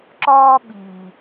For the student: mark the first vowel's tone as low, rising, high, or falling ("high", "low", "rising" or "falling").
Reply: high